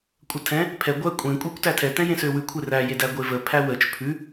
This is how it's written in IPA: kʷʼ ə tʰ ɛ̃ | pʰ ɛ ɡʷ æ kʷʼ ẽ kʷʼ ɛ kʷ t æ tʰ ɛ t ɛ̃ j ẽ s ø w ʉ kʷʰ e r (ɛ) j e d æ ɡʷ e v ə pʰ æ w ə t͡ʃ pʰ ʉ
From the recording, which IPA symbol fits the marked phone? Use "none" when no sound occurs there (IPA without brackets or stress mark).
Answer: æ